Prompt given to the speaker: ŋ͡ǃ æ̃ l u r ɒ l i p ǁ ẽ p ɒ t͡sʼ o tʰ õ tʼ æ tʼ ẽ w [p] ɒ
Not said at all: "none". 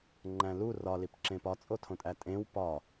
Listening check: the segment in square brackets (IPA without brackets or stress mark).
p